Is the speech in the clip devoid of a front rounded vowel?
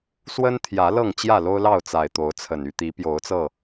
no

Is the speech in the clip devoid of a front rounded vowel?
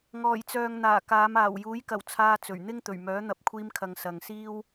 no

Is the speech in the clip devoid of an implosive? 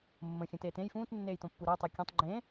yes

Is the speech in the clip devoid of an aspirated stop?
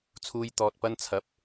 no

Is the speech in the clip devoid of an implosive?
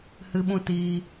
no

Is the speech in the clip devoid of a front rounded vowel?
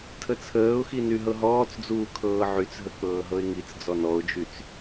no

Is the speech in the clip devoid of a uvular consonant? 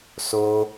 yes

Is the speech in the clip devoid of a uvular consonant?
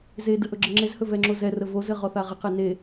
no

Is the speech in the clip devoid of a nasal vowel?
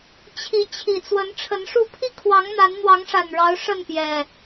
yes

